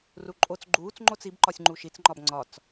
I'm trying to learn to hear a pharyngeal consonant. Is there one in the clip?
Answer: no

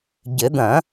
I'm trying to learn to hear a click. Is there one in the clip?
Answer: no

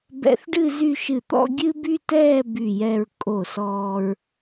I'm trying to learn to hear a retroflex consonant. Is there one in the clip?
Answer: yes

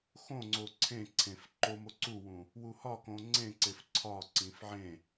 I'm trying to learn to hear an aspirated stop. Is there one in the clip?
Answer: yes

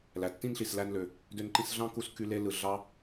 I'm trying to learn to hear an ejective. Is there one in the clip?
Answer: no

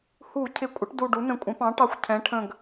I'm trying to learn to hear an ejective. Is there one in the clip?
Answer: yes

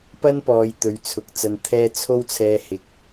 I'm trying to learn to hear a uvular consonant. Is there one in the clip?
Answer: no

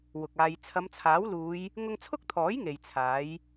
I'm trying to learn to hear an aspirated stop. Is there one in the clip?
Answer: yes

